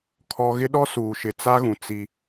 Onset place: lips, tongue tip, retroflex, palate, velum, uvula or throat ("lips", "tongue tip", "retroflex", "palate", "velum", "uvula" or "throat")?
velum